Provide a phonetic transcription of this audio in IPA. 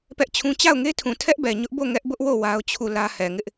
p ɛ˦ ʔ t͡ɕʰ ũ˦ t͡ɕ a˦˨ ʊ̯ ŋ e˦ tʰ ũ˨ tʰ ɛ˦ ʔ b ɛ˨ ɲ ʊ˦ ʔ b o˦˨ ŋ ɛ˦ ʔ b ʊ˦ ʔ w o˦˨ w a˦ ʊ̯ t͡ɕʰ u˦˨ l ä˦ h ɛ˨ ŋ ɪ˦ ʔ

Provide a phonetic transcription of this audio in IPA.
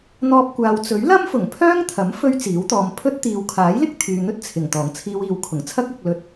n̪ ɔː˧ p̚ kʷ aː˨ w t͡s ɵ˨˥ ɥ l ɐ˥ m f ʊ˨˩ ŋ pʰ œː˥ ŋ t̪ʰ ɐ˨˥ m f ɵ˥ ɥ t͡s iː˨˥ w t̪ ɔː˧ m pʰ ɵ˥ t̚ t̪ iː˨ w kʰ aː˨˥ j l ɪ˥ k̚ t̪ʰ yː˨ n̪ ɵ˥ t̚ t͡sʰ ɪ˨˩ ŋ t̪ ɔː˨˩ ŋ t͡sʰ iː˧ w iː˨ w kʰ ʊ˨˩ ŋ t͡sʰ ɐ˥ k̚ ʊ˧ k̚ l ɵ˧ t̚

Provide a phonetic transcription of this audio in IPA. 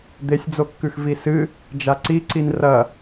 d̪ e sʲ d͡z o kː ʉ x v i s ɨ | d͡ʒ a ǀ i ǀ i n r ɐ

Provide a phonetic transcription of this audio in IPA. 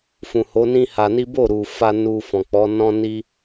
f ũ˨ h o˨˦ n ĩ˦ h a˧ n i˦ b o˦˨ ɾ u˨ f a˧ n u˧ f ɔ̃˨ k͡p ɔ˨˦ n ɔ̃˦ n i˦

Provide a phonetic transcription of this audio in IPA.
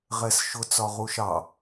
ʁ ɛ s ʃ ʊ t͡s ɒ ʁ u ʃ ɑ

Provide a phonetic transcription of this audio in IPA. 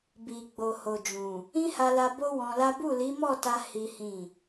b i˨ ɡ͡b o˨ h o˨ d͡ʒ ũ˨ | ĩ˦ h a˧ l a˧ b o˦ w ɔ̃˧ l a˦ b u˦˨ l i˨˦ m ɔ˦˨ t a˧ h i˦ h ĩ˦˨

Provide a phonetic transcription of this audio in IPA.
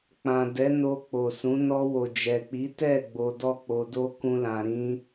k͡p ã˨ d ɛ˨˦ n o˧ k͡p o˨ s ũ˨˦ n ɔ˧ w o˨ d͡ʒ ɛ˨ k͡p i˨˦ t ɛ˦˨ ɡ͡b o˧ d ɔ˦ k͡p o˧ d o˦ k ũ˦ l ã˧ ɾ ĩ˦

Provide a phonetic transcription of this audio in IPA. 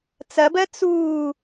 t͡s ɐ b ɜ t͡s uː

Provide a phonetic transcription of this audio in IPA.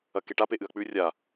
ɐ k e ʈ a p e ʔ ɨ ɐ̯ k͡p ʉ rʲ a

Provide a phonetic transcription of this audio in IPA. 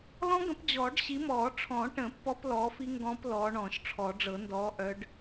l ɔ̃˦˥ ɡ ə̃˨˦ p d͡ʑ ɔː˨˩˦ ɖ ɕ i˨˦ m ɔː˨˩˦ ʈ͡ʂʰ ɔ̃˨˩˦ ʈ ə̃˨˩˦ pː ɔ˦˥ p l ɔː˨˦ f i˦˥ ŋ ɡ ɔ̃ː˦˥ p l ɔː˨˦ ɳ ɔ̃ː˨˩˦ ʃ ʈ͡ʂʰ ɔ˨˩˦ ɖ͡ʐ ɤ˨˩˦ n d ɔː˨˦ ʔ œ˨˦ ɖ

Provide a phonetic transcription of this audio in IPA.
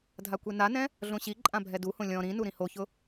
dʱ a kʷ e n a n ɛ̃ | ɮ õ ɕ i ǃʼ ã bʱ ɛ d u h õ lʲ ɔ̃ ɾ ĩ n u ɾ ĩ h o ç ʊ

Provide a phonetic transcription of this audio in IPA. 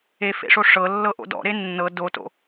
e f ḛ ʂ o ʂ ɤ lː ɤ ʔ o̰ d ɔ̰ ɾ e nː ɤ d o t o̰

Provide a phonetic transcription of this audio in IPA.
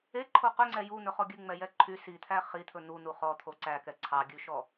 e ǃʰ o q ɵ ŋ͡ǀ ɛ j u n̪ ɵ χ ɔ ɡʲ ʉ ŋ͡m ɛ j ɛ ǃʰ y s i t̪ʰ æ χ i t̪ʰ ɵ n̪ u n̪ u χ ɔ t̪ʰ o ǀ æ k ɛ ǀʰ ɑ ɡʲ ʉ ʃ ɔ

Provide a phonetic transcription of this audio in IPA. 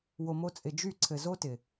w o˨ m o˧ t͡sʼ ɪ˨ d͡ʒ y˦˨ ǀʰ ɘ˨ z o˦ t ɪ˨

